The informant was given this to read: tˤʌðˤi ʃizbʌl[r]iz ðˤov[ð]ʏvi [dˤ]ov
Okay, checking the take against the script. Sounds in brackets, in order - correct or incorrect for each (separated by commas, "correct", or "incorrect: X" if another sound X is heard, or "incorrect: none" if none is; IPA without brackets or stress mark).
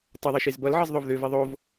incorrect: ʕ, correct, incorrect: ðˤ